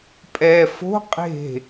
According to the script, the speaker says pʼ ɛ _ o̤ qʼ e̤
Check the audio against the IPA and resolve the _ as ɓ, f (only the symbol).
f